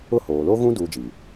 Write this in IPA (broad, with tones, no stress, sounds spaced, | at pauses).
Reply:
ʊ˦˨ h oː˨ l o˦ ɣ ũ˦ d uː˦ d͡ʒ i˨